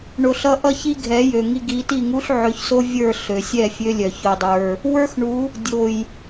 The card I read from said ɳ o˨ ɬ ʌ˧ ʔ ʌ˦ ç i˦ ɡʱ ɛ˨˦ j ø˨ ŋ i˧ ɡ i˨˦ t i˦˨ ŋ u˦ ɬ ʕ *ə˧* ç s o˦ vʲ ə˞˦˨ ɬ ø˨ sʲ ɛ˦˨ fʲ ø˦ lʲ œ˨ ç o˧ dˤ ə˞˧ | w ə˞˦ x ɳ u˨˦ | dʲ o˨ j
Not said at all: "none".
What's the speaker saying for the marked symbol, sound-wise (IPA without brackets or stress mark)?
ø˧